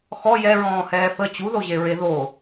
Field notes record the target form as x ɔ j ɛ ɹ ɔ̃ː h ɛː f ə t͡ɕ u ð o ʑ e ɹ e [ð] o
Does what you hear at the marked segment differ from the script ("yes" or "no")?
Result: no